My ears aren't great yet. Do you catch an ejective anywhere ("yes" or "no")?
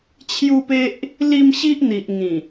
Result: no